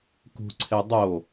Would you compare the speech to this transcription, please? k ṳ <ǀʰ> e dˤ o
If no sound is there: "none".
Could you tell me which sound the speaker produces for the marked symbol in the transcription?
ǀʰ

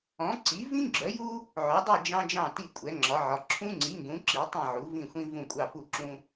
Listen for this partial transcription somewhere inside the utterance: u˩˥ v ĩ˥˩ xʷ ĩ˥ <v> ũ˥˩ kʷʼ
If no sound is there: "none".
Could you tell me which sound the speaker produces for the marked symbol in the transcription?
v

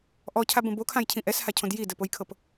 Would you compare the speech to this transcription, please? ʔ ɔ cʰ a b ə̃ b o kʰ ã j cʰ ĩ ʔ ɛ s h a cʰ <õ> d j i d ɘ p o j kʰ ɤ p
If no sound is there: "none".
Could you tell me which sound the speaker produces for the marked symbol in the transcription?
õ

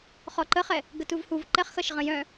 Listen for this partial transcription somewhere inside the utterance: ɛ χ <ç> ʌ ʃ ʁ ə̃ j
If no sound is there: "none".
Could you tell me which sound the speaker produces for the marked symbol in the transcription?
x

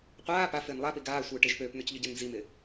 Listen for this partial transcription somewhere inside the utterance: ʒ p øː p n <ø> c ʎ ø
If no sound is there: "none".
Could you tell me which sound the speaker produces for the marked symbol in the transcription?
ø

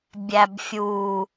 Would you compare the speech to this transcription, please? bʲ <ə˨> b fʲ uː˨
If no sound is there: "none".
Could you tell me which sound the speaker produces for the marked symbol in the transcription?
æ˨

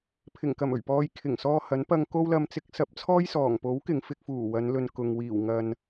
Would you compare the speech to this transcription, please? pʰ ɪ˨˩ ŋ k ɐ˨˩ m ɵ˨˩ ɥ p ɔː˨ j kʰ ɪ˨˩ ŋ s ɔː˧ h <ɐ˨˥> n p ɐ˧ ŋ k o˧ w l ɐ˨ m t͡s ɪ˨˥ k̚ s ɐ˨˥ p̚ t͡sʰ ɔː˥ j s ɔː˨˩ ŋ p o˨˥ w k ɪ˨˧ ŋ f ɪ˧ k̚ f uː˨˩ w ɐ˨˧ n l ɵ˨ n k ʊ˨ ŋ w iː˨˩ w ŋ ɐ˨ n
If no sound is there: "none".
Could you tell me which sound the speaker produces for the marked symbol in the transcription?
ɐ˨˥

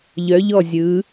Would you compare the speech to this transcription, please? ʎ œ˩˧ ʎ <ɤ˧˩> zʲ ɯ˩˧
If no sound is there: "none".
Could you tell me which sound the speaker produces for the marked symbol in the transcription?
ɔ˧˩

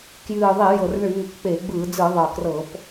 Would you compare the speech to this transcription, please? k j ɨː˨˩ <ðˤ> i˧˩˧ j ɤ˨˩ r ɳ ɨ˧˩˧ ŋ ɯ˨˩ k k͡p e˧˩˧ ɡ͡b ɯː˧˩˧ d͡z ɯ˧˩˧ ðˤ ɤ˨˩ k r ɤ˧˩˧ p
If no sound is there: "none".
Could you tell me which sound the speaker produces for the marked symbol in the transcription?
ðˤ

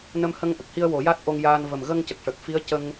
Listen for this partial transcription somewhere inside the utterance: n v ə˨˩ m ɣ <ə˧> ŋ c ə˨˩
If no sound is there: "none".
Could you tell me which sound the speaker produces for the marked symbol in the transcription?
ə˧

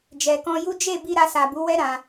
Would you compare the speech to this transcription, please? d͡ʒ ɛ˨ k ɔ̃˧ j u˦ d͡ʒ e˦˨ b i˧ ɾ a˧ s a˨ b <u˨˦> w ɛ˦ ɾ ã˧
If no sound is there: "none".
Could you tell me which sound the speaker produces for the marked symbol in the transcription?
u˨˦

